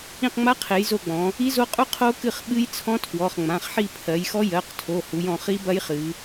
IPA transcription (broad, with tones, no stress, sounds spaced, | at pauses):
ĩ˦˨ q ŋ͡m a˦˥ qʰ e˩˧ j z o˦˨ ɡ͡b ɔ̃˩˧ | i˦˥ z o˦˥ qʼ u˦˥ qʰ o˦˥ k ɨ˦˨ χ ɓ ɨ˦˥ j t͡sʰ ɔ̃˦˥ tʰ w ɔ˩˧˩ χ ŋ͡m ã˩˧˩ χ ħ i˦˨ pʰ ɜ˩˧ j x ɔ˦˥ j ɜ˩˧˩ q tʰ o˩˧˩ h u˩˧ j ɔ̃˩˧ χ i˦˥ b ɐ˦˥ j χ ɨ˩˧